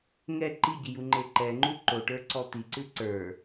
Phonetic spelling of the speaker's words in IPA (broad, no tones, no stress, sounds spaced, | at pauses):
ŋ ɛ ǃ i ɟ i j u ŋ͡ǃ e ǃ ɛ ŋ͡ǃ u ǃ o ʈ ə˞ ǀ ɔ t̪ i ǀ ɨ ǀ ə˞